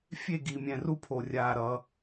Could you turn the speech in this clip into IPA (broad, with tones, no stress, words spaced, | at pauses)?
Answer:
fʲe˦˨ɡi˨mʲɛ̃˨ru˦ pʰo˨rʲaː˦˨ ɾʌ˦